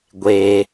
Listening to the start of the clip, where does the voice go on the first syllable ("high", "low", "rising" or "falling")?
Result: high